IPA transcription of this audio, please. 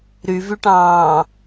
ɾyvyʈɑ̃ː

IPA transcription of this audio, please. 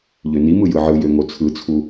ʎønimɯ jɯʕɯjø ŋot͡sʰɯt͡sʰu

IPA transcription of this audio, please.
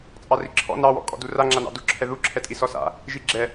t͡sʼɑriǁʰɔ̰ nɑwɔ̰ kʼɔ̰dura ŋ͡ǁanɑ̰duǁʰɛ ðuǁʰɛtʼi sɔsa̰ | ʒiɡ͡ǁɛ

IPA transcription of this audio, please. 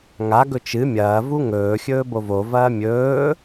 ŋa ɡɵt͡ʃɨ mʲɐː vuŋɵː xʲɵːbovo vɐːmʲɵː

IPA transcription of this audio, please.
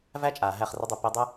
væ˦t͡ʃʼaː˨ ɦæ˦˨χrə˦dˤɵ˧ pi˧dˤə˦

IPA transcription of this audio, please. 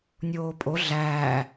nʲoːpʼo ɮæː

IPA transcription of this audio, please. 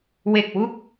we˨˩k̚wu˦˥k̚

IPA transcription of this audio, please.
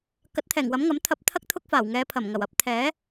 kɐ˨˥t̚t̪ʰɛː˨˩ŋ wɐ˨˥mŋɐ˨˥m t̪ʰɐ˧p̚t̪ʰɐ˥k̚ t̪ʰʊ˥k̚ faː˨˩wŋɛː˨˧pʰɐ˨˩mŋɐ˨˩w ɐ˧p̚t̪ʰɛː˨˥

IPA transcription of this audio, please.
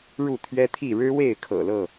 ɻu˥˨t̪ʰɥɛ˦t̪ʰi˥˨ ɻɻ̩˦we˥˨ɪ̯ kʰɤ̰˨˩lɤ˥˨

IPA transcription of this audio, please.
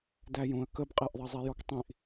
dæjũə̯ kəbqʼæʔðˤɑzˤɛ jɔktˤĩʔ

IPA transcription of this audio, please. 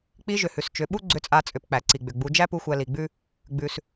k͡pi˧˥ʒʏ˩hʉ˩s t͡ʃʏ˩˧ɓu˥ ɡ͡ǀʏ˧˥t͡sʼa˧t͡sʼʏ˩˧p k͡pæ˩ǀi˩ɡ͡bʏ˩ ɡ͡bu˩˧d͡ʒæ˥pu˧ xʷæ˧li˩ɡ͡bʉ˥ | ɡ͡bʉ˩s

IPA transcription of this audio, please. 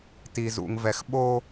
ti˨zṵ˨ŋ vɛ˨xɓo˦

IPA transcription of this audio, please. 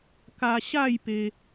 ka˧ɕa˥˧j pe˧

